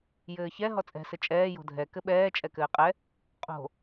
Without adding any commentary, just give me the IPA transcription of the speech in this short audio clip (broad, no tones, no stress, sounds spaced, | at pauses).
j ɘː ç ɛ ɦ ɔ t͡sʼ ɛ̤ s ɘ t͡ʃʼ ɛː j o̤ dʱ ɛ k ɘ ɓ ɛː t͡ʃʼ ɛ k ɘː qʼ ɛ | qʼ o̤